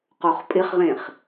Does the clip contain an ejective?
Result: yes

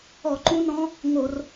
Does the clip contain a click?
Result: yes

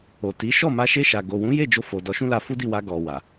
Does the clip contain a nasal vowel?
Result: yes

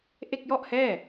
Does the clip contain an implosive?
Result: no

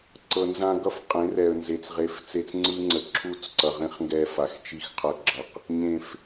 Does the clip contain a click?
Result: yes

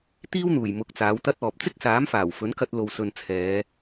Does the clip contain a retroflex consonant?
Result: no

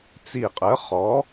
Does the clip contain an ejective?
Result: yes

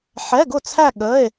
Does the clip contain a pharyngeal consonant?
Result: yes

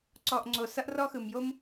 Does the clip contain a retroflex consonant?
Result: no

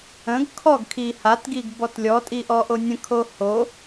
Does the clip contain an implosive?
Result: no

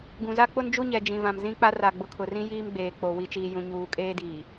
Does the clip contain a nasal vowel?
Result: yes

